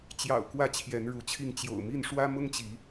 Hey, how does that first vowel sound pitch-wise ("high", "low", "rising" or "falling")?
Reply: low